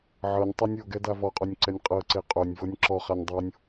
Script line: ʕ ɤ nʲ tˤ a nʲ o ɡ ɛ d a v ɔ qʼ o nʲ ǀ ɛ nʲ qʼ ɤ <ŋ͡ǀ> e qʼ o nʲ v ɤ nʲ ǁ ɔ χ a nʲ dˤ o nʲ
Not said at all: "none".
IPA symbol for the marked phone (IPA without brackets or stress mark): ǀ